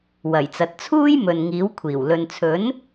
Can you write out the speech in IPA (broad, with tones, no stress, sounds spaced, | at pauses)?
w ɐ˨˩ j t͡s ɐ˨ t̚ t͡sʰ uː˥ j m ɵ˨ n ŋ iː˨˥ w kʷʰ iː˨˩ w l ɵ˨ n t͡sʰ ɵ˨˥ n